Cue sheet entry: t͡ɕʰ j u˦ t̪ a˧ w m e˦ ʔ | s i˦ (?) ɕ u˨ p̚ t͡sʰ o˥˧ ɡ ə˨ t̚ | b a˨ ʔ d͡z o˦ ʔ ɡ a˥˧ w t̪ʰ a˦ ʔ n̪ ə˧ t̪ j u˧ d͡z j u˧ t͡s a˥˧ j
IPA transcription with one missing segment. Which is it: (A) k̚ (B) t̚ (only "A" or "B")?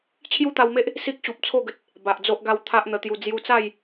A